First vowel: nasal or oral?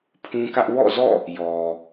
nasal